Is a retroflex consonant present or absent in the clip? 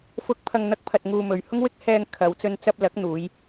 absent